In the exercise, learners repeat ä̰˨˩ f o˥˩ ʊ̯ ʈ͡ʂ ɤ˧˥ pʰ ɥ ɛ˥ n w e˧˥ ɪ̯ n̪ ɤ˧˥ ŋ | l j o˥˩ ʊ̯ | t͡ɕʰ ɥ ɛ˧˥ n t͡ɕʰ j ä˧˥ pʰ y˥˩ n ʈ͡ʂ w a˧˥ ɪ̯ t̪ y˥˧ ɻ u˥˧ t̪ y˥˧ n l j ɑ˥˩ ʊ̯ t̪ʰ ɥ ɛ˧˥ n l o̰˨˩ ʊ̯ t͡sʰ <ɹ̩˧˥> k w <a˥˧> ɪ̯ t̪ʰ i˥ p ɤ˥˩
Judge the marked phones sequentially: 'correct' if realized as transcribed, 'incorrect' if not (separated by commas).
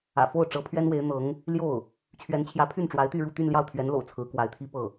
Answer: correct, incorrect